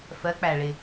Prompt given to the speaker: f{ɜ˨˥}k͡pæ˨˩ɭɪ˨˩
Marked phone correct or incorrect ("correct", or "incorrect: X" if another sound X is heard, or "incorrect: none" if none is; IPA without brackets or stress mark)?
correct